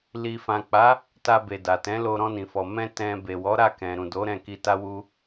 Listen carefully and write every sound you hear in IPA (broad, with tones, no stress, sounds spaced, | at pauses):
l i˨ f ã˨ k͡p a˨˦ | t a˧ b e˨ d a˨ t ɛ̃˨˦ l o˧ ɾ ɔ̃˧ n ĩ˨ f ɔ˨ m ɛ̃˧ t ɛ̃˨ b e˨ w ɔ˨˦ ɾ a˦˨ k ɛ̃˨ ɾ ũ˨ d o˨˦ ɾ ɛ̃˦˨ k i˧ t a˦ w u˦